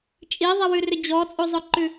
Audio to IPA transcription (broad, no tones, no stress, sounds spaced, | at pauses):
t͡ʃʼ i ðˤ i w ʉ r ʏ d͡ʑ ɔ t͡sʼ u zˤ ʊ ǃ ʉ